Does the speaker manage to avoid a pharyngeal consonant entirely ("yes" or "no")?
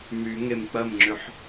no